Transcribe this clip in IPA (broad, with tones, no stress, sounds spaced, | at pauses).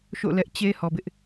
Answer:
ʃ o̰˦˨ l ɛ˦ ʔ t͡ɕ e˦ h ɔ˨ b ɪ˦ ʔ